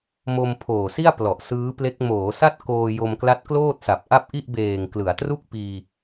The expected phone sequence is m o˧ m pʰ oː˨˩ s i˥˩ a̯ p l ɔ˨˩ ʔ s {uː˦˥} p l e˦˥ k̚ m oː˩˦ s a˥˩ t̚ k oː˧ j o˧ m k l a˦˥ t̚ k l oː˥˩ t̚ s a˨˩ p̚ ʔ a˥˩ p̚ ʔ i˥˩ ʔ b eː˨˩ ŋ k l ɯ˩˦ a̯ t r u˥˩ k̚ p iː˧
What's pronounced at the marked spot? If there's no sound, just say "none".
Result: ɯː˦˥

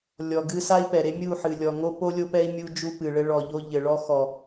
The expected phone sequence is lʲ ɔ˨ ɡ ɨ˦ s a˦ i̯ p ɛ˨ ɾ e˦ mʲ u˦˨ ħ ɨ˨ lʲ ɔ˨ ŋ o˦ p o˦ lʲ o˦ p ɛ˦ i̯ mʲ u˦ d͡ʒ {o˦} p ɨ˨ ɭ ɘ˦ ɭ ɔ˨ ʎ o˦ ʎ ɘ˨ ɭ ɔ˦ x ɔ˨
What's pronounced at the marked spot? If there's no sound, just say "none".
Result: u˦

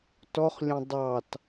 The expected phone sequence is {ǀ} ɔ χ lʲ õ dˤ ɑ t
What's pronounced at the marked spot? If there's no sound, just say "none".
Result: t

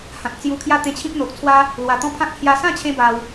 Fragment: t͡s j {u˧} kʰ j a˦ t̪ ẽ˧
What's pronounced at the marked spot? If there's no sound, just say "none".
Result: u˧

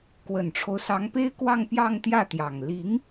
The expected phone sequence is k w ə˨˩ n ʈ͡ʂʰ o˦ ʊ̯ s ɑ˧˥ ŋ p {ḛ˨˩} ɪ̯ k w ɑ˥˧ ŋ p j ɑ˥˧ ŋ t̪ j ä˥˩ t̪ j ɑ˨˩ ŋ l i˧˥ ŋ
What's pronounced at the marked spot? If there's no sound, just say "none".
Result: e˥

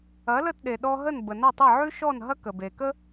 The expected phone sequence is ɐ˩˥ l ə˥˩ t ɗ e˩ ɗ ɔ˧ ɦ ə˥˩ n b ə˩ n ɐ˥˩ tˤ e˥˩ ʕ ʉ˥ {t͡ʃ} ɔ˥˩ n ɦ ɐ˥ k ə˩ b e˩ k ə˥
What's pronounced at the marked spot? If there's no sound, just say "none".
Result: ʃ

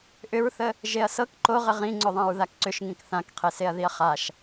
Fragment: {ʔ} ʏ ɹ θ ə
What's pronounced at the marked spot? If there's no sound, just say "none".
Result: ʔ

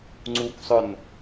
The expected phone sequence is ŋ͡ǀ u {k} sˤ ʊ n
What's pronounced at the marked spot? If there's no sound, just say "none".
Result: k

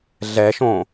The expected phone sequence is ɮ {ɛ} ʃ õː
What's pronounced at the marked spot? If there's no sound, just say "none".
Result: ɛ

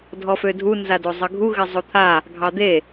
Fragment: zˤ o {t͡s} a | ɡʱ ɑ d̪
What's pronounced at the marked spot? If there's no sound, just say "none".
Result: t̪ʰ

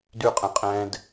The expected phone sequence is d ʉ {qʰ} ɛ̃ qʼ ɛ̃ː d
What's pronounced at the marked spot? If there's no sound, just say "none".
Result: qʼ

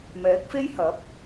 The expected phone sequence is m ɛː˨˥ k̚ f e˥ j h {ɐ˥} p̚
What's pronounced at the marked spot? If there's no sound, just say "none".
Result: ɐ˨˥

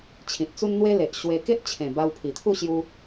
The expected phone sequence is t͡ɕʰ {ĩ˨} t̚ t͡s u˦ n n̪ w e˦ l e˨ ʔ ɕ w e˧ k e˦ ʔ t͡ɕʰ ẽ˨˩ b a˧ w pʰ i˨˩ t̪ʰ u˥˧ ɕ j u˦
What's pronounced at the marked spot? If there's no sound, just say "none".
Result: ĩ˨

